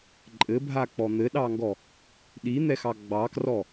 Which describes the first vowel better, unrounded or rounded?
unrounded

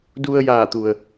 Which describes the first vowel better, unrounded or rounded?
rounded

